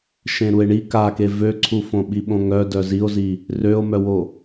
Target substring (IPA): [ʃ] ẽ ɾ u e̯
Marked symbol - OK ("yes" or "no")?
yes